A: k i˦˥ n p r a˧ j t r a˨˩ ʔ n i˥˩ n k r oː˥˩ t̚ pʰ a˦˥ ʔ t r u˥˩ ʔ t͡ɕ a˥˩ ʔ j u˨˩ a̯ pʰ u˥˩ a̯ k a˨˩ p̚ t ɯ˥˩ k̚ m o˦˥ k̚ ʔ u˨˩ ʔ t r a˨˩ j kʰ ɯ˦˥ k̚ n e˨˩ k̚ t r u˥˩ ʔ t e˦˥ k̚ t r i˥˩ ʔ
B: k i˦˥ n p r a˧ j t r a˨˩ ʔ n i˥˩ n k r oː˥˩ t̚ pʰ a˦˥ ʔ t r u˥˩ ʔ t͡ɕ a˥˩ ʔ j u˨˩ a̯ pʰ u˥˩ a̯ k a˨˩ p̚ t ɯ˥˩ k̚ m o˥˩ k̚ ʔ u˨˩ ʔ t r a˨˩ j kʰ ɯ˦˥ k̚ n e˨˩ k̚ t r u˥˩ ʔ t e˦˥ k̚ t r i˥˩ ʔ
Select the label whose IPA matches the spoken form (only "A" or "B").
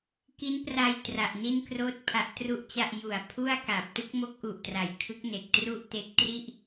A